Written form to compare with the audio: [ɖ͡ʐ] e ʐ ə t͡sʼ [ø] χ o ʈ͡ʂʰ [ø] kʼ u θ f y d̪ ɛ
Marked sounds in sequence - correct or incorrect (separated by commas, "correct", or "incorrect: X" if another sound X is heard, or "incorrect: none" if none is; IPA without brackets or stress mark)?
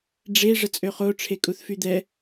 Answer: correct, correct, incorrect: e